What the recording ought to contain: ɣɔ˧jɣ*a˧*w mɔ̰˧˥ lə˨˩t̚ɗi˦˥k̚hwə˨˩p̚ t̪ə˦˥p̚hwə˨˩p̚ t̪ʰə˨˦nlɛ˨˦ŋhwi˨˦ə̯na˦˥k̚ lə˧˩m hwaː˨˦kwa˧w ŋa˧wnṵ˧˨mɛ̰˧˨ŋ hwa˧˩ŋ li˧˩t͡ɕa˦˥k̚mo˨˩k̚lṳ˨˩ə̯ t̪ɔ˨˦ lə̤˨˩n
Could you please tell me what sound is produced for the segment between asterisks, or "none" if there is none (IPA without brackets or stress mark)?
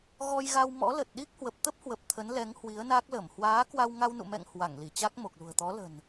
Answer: a˧